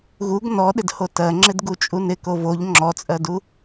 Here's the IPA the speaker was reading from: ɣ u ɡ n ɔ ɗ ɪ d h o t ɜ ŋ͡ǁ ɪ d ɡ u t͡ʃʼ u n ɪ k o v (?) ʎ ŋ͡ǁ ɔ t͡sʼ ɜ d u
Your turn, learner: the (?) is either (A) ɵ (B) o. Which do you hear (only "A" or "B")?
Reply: B